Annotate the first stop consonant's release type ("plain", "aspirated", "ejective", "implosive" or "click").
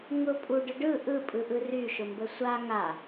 ejective